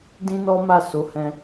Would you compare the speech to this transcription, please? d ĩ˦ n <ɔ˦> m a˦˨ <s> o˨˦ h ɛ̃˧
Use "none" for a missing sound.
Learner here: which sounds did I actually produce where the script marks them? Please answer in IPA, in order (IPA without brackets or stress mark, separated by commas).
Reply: ɔ˦, s